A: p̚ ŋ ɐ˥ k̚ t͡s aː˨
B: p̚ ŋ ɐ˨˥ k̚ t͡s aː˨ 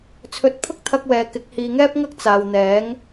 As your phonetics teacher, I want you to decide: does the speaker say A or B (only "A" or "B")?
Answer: A